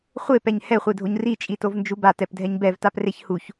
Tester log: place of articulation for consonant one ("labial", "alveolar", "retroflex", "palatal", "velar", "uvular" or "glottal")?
uvular